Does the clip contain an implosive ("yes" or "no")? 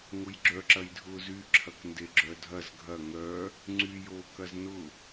no